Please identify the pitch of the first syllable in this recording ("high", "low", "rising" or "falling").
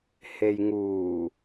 low